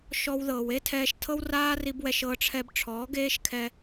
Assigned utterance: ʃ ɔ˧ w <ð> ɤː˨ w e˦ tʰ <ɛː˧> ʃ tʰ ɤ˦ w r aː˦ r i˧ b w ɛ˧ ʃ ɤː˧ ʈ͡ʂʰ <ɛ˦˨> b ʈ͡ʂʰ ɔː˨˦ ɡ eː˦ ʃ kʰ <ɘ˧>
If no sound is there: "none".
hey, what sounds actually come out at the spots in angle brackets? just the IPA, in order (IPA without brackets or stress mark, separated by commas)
ð, ɛː˧, ɛ˧, ɛ˧